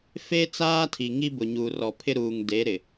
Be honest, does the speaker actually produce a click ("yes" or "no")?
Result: no